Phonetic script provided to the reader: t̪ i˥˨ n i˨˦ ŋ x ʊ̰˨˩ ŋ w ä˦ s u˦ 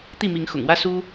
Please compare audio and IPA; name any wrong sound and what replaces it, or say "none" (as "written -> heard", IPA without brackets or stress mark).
n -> m